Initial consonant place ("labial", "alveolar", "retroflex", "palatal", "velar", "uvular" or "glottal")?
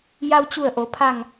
palatal